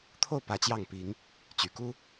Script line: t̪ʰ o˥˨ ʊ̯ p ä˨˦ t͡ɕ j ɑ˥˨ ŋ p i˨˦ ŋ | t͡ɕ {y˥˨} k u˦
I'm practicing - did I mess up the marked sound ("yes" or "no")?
yes